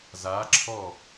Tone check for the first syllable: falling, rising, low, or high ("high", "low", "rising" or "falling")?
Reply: rising